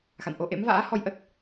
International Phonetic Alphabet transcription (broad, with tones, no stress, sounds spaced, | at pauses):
x a̰˧˨ n ʔ o˧ ʔ ḛ˧˥ m v a̰ː˧˥ h ɔ˧ j ʔ ə˦˥ t̚